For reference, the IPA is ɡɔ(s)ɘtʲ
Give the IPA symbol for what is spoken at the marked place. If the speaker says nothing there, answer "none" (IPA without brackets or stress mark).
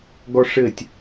ʂ